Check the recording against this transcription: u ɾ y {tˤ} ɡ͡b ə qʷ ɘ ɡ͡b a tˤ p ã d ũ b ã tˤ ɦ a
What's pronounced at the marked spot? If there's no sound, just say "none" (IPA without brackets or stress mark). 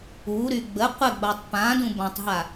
none